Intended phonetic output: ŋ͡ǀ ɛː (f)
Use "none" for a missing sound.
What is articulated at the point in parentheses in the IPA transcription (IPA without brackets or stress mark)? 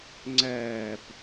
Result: p